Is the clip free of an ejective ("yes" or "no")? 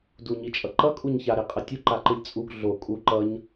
no